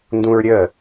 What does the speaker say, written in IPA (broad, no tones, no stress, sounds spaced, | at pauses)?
n d ũ ɹ ɾʲ ə